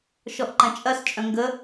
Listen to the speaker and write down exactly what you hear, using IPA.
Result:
ʃ ɔ ʔ ǃ ɐ̃ t͡ʃʼ ɐ s t͡ʃʼ œ̃ ŋ ɡ ə

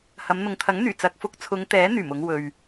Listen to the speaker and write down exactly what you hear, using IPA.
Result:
h ɐ˨˧ m n̪ ʊ˨ ŋ t̪ʰ ɐ˨˥ ŋ n̪ yː˨˩ t͡s ɐ˨ k̚ f ʊ˧ k̚ t͡sʰ ʊ˨˧ ŋ t̪ ɛː˨˥ n̪ yː˨˩ m ʊ˨˧ ŋ w ɵ˨ ɥ

